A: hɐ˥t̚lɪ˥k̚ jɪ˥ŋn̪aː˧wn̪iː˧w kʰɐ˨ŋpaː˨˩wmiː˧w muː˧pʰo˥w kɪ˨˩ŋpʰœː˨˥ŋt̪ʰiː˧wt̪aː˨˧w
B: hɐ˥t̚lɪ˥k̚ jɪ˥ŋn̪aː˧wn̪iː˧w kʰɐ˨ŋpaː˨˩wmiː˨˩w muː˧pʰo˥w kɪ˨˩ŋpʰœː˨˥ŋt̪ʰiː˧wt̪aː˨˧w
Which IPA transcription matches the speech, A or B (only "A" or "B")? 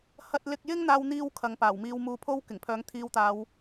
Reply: A